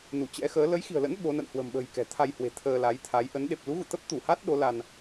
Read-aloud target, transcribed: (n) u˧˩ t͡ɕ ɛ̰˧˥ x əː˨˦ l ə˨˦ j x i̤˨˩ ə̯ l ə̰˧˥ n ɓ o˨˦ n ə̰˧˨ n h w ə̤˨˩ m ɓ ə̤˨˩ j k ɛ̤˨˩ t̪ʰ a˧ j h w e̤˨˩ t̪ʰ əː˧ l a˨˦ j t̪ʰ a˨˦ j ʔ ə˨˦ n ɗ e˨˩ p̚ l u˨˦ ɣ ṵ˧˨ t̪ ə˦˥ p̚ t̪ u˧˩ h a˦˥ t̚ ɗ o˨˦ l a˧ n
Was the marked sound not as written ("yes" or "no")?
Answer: no